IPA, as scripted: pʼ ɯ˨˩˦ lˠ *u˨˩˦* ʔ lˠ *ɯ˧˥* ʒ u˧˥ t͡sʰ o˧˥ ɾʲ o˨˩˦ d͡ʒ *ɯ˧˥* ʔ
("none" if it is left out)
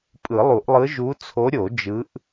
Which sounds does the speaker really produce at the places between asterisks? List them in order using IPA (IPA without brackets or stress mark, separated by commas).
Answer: u˨˩˦, ɯ˧˥, ɯ˧˥